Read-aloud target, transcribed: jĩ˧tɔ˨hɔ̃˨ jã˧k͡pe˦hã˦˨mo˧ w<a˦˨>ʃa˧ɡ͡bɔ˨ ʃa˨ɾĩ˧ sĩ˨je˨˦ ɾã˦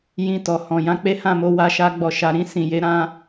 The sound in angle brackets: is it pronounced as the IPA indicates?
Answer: no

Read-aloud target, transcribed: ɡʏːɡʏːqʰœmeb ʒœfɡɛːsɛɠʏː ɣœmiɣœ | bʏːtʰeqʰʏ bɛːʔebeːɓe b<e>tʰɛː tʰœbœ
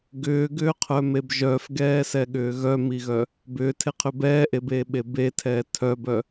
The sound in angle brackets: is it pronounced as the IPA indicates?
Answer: yes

